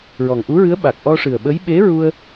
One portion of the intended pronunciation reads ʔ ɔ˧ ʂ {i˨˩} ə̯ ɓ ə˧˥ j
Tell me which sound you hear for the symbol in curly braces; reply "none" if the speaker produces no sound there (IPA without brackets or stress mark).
ɨ˨˩